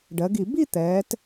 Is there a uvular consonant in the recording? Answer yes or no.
no